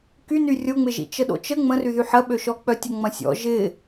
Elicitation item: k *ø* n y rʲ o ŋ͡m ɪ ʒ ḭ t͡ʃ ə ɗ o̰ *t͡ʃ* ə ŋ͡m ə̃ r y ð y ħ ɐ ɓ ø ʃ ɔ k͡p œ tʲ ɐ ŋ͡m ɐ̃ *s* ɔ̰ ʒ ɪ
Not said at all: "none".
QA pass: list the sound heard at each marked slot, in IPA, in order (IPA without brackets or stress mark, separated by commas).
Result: y, t͡ʃ, sʲ